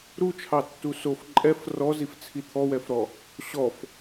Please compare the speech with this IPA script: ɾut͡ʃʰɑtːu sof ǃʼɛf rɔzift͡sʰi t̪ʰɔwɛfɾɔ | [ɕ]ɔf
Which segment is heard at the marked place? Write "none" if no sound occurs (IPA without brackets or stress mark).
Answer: ɕ